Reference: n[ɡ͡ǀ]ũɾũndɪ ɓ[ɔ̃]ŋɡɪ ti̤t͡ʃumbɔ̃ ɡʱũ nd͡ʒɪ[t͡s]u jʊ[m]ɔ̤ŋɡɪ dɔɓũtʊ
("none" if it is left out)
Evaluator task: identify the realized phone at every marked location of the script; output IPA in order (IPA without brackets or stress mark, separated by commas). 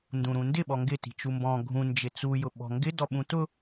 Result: d, ɔ, t͡s, ɓ